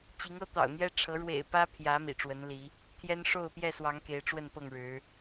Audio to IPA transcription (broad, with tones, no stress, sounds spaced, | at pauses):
t͡ɕ i˨˦ ŋ ɤ˦ t̪ ɑ̰˨˩ ʊ̯ n̪ j ɛ˦ ʈ͡ʂʰ ɤ˨˦ ɻ w ḛ˨˩ ɪ̯ p ä˦ pʰ j ä˨˦ m ḭ˨˩ ʈ͡ʂ w ə˨˦ n l i˨˦ | t̪ʰ j ɛ˦ n ʂ o˥˨ ʊ̯ p j ɛ˥˨ s w ɑ˨˦ ŋ k e˨˦ ɪ̯ ʈ͡ʂ w ə˥˨ n p ɤ˥˨ ŋ ɻ ɻ̩˨˦